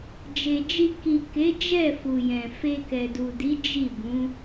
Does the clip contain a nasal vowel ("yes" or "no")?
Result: yes